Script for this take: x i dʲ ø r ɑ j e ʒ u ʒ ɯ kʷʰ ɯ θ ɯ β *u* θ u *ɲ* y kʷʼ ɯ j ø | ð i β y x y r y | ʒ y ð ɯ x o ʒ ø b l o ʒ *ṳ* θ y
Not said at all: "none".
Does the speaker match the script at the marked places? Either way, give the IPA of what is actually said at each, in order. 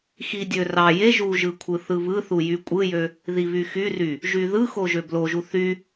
ɯ, j, u

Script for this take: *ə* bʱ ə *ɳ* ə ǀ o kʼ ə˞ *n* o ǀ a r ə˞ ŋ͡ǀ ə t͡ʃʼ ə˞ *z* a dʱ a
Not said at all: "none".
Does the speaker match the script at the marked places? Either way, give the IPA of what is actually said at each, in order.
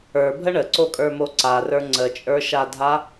ə˞, ɳ, m, ʃ

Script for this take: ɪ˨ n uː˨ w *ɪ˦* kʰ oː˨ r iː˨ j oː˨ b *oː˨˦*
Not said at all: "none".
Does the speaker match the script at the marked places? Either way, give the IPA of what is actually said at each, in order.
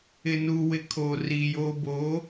ɪ˨, oː˨˦

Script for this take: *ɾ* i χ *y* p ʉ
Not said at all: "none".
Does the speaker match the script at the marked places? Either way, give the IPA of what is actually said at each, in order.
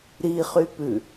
ɾ, y

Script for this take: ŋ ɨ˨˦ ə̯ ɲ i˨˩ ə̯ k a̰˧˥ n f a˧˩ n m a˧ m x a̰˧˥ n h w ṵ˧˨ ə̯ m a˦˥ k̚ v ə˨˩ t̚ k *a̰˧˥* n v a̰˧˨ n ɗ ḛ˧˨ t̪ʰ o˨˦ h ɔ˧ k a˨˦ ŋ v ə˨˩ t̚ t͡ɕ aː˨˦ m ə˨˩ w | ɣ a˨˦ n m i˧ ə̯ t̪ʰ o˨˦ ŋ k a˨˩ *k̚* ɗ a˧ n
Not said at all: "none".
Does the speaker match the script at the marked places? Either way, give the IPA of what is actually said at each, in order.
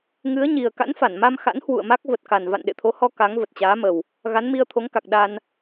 a˨˩, k̚

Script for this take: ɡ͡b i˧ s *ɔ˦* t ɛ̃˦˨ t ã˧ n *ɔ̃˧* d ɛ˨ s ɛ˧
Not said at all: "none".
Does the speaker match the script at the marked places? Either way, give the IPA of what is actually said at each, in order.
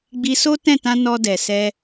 o˦, ɔ˧

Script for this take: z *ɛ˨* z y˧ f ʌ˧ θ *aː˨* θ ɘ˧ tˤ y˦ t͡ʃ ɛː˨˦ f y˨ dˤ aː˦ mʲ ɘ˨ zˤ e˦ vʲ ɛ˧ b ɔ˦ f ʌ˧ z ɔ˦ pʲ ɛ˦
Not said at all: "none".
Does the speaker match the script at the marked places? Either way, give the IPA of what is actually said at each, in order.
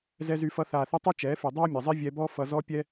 ɛ˧, aː˨

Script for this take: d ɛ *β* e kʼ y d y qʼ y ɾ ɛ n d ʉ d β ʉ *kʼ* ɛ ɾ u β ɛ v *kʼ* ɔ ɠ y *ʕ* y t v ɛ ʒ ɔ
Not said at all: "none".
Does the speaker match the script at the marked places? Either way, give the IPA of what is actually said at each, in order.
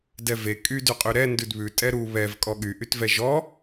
v, tʼ, kʼ, ʔ

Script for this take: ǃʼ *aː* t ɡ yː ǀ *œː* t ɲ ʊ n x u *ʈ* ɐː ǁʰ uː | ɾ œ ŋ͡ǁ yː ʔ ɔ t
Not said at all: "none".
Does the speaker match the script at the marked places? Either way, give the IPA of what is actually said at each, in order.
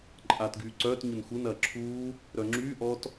aː, œː, n

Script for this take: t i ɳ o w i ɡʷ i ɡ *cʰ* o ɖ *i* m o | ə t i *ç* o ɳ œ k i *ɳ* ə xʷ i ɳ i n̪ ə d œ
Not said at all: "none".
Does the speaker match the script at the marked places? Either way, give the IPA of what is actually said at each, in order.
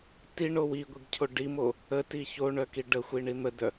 cʰ, i, ç, ɖ

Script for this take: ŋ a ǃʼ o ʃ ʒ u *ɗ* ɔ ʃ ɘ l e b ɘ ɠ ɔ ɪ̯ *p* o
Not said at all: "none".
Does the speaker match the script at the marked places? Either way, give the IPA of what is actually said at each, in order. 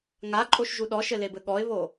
ɗ, β

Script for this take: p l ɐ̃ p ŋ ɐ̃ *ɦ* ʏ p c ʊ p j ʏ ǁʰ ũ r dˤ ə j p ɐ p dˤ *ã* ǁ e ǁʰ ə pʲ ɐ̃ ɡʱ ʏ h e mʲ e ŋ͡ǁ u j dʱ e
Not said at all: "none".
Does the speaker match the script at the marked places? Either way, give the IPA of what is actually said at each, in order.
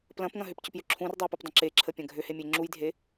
ɦ, ə̃

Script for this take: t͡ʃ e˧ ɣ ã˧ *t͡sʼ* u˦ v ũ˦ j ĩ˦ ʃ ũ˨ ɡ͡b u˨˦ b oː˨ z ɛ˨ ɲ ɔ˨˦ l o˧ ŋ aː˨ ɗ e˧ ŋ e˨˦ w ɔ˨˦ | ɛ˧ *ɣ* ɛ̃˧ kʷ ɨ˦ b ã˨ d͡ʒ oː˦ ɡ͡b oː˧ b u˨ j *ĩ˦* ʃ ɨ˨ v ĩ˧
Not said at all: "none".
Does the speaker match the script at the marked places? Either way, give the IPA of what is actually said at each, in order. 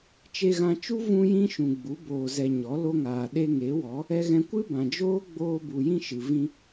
t͡ʃ, ɣ, ĩ˦

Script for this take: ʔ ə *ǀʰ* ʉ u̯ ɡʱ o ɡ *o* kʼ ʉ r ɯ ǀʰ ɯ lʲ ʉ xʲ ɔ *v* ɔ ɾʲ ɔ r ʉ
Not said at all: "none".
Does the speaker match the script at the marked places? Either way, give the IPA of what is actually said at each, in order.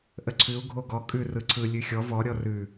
ǀʰ, ɔ, v

